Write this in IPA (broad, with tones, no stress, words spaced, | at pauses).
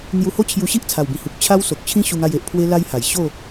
n̪ju˧ho˦t͡ɕʰju˧ɕi˦ʔ t͡sʰa˨˩wbĩ˨˩hu˨k̚ t͡ɕʰa˦wso˨k̚t͡ɕʰĩ˦ ɕu˧ŋa˧je˨ʔ pʰwe˦la˦jha˨˩j ɕo˥˧